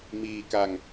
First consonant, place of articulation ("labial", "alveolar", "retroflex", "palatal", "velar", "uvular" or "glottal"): labial